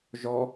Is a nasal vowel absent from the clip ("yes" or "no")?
yes